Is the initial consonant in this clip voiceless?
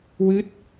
no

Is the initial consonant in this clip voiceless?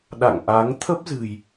no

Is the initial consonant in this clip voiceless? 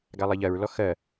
no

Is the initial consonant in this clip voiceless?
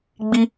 no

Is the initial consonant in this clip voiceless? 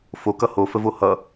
yes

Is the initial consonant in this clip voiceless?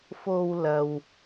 yes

